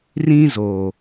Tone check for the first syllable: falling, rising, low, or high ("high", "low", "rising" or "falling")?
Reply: high